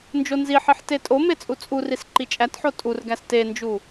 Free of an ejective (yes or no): no